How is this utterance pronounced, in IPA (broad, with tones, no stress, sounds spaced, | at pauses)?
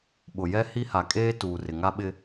ɓ ʊ˨ j ɛ˦ h i˦ h a˨ kʼ eː˦ t uː˨ r ɪ˨ ŋ a˦ ɓ ɪ˦